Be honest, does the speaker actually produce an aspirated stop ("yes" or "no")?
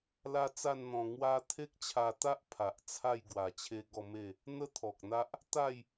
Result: yes